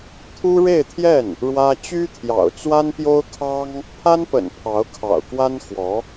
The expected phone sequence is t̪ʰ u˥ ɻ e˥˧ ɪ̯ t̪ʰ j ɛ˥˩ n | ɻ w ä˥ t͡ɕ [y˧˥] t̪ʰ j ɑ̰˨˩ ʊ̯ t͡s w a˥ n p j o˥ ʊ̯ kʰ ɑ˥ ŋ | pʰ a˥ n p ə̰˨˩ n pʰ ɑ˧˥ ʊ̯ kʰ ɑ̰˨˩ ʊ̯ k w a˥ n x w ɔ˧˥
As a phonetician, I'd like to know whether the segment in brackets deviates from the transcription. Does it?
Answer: yes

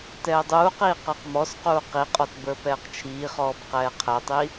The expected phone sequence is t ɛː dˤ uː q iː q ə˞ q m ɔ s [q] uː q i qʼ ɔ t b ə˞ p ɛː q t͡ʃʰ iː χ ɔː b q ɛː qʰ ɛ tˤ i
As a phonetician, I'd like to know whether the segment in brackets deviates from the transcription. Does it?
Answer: no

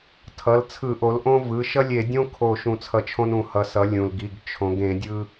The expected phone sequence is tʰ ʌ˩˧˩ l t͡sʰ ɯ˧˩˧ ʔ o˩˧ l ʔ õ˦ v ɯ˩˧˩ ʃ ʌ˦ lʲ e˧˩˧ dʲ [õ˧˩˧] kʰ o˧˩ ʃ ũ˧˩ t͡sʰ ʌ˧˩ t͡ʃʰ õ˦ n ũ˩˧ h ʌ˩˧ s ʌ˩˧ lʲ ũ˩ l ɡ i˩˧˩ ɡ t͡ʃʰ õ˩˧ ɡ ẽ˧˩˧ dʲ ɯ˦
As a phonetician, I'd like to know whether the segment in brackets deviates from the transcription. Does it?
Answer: yes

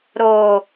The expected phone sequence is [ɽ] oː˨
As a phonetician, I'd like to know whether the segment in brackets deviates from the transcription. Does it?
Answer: yes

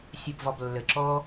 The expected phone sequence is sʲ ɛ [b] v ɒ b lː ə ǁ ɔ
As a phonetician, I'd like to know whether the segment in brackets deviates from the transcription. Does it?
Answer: no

